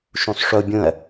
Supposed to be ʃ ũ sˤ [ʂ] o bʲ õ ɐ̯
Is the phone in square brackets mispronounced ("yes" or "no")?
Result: no